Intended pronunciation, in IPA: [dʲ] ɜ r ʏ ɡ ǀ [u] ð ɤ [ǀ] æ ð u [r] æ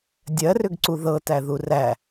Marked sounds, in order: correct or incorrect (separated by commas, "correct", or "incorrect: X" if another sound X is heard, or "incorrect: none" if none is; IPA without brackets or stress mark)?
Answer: correct, correct, incorrect: t, correct